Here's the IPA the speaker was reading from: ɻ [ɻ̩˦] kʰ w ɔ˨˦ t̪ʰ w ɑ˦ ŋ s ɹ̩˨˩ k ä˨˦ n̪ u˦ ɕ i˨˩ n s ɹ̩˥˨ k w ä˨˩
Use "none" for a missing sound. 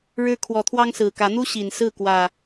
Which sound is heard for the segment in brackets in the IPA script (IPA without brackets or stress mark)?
ɻ̩˦